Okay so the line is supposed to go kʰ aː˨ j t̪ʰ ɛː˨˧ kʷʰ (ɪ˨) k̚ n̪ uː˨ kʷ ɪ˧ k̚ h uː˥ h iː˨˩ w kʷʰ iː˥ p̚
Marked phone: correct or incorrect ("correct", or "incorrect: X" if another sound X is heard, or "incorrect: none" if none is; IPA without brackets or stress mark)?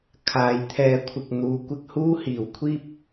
correct